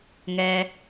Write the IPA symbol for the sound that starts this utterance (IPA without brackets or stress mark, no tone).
ŋ